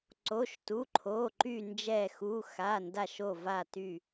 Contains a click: yes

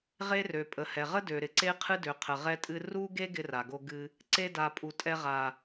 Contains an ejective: yes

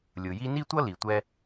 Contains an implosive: no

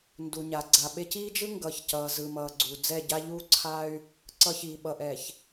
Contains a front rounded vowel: yes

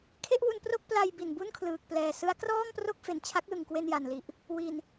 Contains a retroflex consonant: no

